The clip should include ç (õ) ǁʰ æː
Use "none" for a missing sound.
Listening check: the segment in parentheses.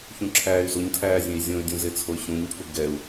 ũ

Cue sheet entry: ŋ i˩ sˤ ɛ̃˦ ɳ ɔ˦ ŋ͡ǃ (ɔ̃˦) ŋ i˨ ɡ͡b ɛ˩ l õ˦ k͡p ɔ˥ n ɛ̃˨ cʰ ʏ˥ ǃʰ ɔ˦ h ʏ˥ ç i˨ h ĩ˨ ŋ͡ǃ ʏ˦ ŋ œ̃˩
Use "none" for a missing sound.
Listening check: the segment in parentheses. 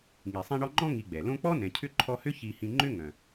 ɔ̃˦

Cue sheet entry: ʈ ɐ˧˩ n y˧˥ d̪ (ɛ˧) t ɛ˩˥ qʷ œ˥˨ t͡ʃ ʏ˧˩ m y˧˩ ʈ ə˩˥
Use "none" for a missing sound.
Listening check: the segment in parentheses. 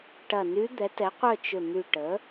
ɛ˩˥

